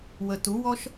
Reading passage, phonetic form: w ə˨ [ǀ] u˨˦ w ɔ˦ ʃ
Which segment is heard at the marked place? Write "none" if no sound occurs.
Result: t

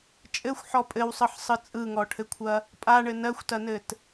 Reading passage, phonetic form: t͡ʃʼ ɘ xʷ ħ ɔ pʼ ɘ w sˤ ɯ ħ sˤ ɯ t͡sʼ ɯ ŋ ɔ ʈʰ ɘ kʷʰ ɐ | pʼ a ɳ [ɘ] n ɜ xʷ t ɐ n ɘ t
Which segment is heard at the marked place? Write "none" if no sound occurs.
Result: ɘ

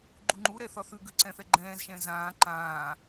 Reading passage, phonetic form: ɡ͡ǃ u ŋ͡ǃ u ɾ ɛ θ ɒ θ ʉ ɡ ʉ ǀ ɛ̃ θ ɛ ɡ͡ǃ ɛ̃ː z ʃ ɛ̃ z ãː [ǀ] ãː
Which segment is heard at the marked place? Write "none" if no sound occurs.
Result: ǃ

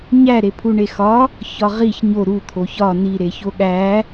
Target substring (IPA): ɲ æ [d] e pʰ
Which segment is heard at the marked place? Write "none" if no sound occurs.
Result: ɾ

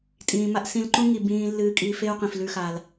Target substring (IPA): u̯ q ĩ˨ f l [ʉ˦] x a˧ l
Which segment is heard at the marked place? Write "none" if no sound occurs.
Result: ʉ˦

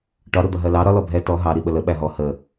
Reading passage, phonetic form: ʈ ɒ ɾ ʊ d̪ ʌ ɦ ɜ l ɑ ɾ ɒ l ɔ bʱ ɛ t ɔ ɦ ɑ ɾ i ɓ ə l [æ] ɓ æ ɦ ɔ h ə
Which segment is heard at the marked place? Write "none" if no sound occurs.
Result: ə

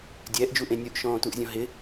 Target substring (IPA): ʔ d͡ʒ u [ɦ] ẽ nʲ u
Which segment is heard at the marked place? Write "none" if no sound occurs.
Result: ʔ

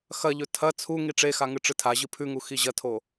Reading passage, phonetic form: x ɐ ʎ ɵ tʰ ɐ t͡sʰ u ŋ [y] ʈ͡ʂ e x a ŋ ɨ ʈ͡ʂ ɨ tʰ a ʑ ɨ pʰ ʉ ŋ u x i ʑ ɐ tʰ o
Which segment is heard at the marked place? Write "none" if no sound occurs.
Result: i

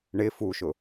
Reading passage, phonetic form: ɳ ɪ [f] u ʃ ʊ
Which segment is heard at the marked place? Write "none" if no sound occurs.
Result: f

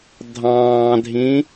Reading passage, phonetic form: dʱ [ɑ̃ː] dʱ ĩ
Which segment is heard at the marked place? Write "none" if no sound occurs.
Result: ɑ̃ː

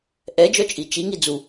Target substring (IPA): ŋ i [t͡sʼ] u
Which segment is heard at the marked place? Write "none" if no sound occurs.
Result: d͡z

